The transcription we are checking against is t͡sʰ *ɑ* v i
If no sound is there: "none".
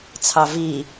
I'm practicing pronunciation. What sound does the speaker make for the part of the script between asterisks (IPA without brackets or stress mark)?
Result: ɑ